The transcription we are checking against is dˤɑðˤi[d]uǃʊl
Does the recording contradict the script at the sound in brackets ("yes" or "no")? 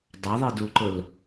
no